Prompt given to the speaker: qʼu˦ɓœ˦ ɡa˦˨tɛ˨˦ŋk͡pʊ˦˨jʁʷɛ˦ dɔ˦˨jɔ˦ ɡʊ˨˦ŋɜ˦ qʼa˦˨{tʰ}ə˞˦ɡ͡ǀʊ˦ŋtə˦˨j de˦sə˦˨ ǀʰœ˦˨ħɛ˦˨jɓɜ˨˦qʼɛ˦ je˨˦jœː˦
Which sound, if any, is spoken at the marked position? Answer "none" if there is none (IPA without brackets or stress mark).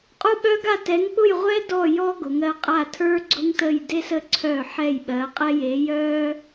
tʰ